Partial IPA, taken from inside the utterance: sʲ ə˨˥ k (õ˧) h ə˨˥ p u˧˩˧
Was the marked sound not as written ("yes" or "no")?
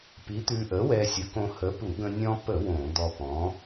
no